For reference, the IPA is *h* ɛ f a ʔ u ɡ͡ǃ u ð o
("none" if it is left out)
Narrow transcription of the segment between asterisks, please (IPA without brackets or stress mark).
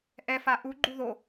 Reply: ʔ